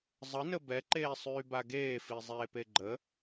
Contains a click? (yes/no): yes